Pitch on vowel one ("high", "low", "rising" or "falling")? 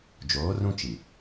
rising